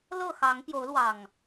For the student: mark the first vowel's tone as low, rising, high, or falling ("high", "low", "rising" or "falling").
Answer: falling